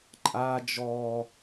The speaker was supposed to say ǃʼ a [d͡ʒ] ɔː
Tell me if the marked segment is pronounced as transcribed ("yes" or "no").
yes